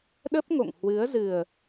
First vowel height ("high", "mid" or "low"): mid